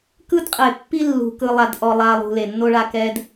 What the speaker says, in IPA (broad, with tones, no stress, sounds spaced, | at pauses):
k ɯ˦ d qʼ e˨ pː i˦ lː ṳ˨ k ɯ˨ lˠ a˨ d ʔ ɔ˨ lˠ a˨ lˠ ṳ˨ l e˨ nː o˦ ɭ a˦ k ɛ˦ d